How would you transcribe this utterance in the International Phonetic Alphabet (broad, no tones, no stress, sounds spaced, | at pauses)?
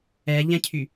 ɛ ʎ ɛ̃ cʰ y